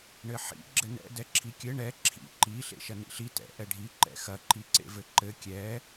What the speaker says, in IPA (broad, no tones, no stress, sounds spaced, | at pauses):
ɳ ɘ ħ ḭ ɡ͡ǁ ɘ n ɛ̰ d ɛ ǁʰ i kʲ ɘ ɳ ɛ ǁʰ ḭ ǃ i ɬ ḛ ʃ ɐ n ḭ ɬ i t ɛ̰ ʔ ɛ ɖʱ i ǃ ɛ̰ x ɐ ǃ i ǀ ḛ v ɘ ǃ ɘ kʲ ɛ